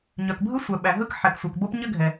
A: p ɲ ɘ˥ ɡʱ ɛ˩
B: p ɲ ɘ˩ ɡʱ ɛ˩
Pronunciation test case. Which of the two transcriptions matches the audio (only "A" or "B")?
A